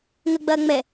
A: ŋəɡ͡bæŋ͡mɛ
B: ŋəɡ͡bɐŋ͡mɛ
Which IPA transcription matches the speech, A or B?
B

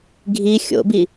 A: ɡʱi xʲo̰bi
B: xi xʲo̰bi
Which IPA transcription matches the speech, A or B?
A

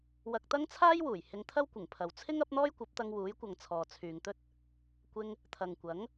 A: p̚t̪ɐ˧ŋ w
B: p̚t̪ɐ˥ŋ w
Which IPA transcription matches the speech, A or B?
A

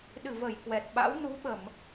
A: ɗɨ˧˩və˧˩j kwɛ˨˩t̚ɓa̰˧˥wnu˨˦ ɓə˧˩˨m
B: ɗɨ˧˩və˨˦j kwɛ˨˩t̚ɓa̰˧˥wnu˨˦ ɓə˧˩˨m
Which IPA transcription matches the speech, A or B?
A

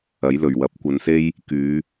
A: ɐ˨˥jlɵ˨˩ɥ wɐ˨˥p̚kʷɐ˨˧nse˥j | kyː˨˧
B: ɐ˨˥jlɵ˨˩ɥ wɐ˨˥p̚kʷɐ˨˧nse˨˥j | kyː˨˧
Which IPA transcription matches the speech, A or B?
A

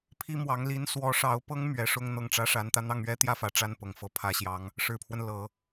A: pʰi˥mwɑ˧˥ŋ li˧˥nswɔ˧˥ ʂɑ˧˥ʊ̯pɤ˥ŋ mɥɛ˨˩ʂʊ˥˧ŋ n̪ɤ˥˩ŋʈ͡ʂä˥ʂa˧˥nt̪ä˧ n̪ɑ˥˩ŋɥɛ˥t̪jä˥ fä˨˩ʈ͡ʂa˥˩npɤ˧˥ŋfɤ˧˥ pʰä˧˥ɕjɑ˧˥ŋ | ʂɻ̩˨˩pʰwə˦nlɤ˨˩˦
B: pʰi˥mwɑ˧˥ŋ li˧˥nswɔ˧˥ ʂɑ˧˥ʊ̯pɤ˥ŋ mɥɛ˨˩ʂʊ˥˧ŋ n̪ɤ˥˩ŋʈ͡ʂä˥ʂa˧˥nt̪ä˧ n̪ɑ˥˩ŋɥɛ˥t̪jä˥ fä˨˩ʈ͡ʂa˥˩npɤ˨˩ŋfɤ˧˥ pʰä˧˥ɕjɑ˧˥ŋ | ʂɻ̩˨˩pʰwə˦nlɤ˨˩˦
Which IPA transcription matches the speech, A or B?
B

